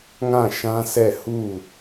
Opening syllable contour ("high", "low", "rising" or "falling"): falling